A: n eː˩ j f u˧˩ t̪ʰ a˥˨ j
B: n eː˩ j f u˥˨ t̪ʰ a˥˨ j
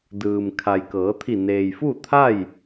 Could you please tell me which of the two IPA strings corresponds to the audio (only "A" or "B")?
B